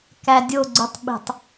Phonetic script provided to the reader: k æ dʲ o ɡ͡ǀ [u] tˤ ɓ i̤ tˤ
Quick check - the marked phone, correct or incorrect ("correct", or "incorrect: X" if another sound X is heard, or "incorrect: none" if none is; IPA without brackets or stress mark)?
correct